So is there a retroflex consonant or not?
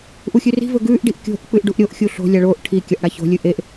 yes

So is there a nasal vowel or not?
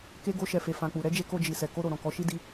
yes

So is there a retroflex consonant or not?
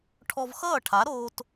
yes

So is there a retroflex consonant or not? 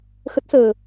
no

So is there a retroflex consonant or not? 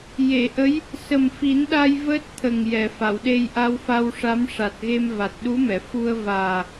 yes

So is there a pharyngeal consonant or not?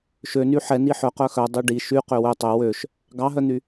yes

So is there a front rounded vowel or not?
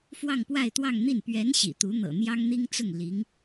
no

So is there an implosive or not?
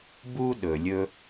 yes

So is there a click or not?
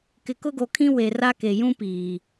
no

